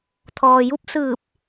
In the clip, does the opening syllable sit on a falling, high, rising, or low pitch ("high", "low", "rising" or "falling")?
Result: low